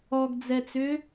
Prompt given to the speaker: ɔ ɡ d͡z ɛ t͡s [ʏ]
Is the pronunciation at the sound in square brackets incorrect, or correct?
correct